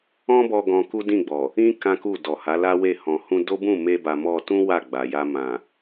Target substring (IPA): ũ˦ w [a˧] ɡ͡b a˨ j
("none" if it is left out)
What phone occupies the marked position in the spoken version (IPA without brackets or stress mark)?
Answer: a˦˨